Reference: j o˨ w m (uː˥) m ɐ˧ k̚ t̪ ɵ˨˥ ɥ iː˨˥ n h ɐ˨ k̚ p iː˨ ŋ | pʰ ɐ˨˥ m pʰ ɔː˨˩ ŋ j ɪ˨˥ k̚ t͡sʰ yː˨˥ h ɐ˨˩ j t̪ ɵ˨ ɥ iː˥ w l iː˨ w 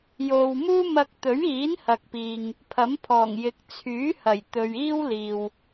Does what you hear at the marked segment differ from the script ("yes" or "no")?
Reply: no